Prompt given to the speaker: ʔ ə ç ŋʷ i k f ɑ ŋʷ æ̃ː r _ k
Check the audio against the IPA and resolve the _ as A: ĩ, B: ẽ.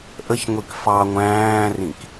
A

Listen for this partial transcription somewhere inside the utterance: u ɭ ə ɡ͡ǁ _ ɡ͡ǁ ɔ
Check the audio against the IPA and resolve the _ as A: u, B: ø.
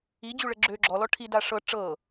B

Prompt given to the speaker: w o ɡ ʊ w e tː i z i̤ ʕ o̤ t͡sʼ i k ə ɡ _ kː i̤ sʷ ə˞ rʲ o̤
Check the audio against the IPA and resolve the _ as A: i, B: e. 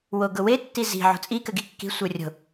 A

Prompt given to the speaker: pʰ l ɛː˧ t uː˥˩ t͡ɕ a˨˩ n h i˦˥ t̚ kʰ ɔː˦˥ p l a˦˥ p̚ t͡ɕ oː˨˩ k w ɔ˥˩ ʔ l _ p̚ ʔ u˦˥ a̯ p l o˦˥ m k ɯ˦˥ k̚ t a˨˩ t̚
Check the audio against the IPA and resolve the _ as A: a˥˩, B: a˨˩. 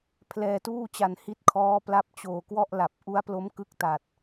B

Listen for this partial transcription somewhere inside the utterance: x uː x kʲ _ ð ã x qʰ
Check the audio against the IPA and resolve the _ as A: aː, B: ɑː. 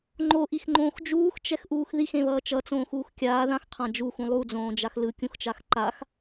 A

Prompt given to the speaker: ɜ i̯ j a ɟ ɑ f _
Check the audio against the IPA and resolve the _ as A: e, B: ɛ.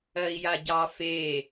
A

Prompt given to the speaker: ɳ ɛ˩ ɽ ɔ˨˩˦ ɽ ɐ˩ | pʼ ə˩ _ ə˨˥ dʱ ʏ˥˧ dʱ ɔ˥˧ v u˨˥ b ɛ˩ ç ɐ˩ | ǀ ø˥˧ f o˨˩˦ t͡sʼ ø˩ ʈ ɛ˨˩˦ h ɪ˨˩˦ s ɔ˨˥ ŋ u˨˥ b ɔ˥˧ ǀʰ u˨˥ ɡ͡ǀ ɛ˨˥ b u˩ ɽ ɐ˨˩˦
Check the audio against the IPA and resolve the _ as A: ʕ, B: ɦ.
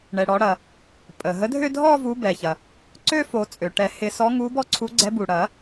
B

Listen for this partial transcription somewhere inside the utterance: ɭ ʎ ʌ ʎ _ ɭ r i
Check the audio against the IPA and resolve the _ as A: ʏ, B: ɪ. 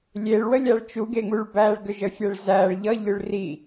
A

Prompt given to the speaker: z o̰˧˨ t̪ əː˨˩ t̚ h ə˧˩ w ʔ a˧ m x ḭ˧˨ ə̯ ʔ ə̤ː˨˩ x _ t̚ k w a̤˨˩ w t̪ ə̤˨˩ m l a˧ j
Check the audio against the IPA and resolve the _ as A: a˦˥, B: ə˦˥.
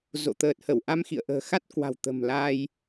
A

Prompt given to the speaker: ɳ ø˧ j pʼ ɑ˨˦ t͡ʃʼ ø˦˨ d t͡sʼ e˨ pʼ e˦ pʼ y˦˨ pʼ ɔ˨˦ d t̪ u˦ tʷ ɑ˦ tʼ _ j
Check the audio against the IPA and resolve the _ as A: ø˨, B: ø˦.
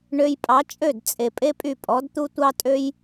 B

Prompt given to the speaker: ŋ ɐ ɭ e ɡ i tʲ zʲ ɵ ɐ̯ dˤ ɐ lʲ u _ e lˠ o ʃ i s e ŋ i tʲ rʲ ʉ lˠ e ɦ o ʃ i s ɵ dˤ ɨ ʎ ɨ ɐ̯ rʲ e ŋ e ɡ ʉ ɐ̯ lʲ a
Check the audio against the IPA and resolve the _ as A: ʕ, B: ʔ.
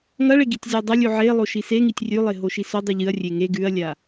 A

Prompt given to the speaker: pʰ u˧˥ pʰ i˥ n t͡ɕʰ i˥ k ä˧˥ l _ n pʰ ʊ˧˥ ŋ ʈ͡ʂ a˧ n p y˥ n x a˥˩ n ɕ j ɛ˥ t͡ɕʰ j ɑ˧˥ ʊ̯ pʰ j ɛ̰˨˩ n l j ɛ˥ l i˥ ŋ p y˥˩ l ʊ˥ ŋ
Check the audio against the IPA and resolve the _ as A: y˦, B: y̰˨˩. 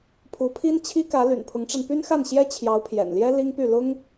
B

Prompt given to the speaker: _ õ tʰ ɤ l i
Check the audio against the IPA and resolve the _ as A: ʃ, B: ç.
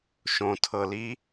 A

